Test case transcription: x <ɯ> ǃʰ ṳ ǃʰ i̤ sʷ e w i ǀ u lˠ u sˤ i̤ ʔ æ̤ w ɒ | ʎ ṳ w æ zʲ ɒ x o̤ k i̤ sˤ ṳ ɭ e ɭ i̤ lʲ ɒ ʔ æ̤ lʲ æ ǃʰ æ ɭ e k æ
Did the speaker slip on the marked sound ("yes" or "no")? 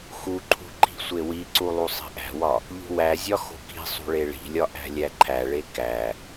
yes